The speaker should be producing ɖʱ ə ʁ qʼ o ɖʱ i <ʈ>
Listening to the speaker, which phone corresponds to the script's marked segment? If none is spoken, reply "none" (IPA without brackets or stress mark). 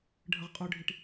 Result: ʈ